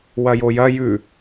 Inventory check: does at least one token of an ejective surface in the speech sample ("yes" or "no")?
no